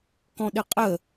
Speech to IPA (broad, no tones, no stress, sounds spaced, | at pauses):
k ɔ̃ ɗ ɪ qʼ ə